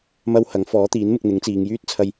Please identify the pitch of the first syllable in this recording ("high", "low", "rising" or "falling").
high